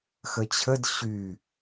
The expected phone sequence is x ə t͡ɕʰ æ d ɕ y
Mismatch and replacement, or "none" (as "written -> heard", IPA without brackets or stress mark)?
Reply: æ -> ə